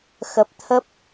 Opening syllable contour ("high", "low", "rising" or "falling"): low